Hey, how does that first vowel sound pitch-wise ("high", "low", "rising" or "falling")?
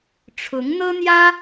rising